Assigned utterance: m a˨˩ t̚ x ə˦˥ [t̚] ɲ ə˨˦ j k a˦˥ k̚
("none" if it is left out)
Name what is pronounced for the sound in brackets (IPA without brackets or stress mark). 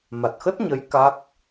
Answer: t̚